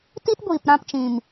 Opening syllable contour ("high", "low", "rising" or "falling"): high